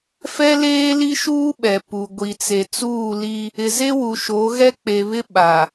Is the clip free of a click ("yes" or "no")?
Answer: yes